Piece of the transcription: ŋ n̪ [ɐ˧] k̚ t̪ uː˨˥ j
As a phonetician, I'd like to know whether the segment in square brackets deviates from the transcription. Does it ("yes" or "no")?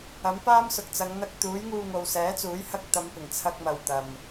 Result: no